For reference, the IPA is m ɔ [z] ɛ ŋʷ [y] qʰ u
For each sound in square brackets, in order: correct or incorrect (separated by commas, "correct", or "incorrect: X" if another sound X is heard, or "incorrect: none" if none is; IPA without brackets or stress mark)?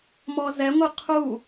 correct, incorrect: ɨ